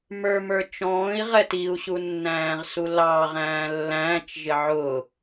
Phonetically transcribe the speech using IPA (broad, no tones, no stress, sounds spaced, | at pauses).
m ə˞ m ə˞ t͡ʃ ɔ̃ː i̯ ʁ ɛ t i u̯ ɕ u nː æ̃ː ʁ s u l ɑː ʁ æ̃ː lː æ̃ː t͡ʃ ʒ ɪ ʕ ʊ